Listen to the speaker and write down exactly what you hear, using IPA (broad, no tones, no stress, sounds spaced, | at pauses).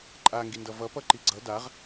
ǃʼ a ŋ ɡ i n d ʌ v ʌ p ʌ ǃ i ɡ͡ǀ ʌ d a ʁ